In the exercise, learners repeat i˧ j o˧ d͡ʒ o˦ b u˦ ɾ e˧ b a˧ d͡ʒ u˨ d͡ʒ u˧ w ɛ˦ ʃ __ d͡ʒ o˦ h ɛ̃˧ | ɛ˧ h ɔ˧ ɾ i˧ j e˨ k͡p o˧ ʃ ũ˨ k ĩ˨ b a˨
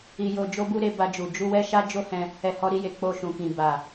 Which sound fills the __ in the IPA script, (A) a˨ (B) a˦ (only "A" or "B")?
B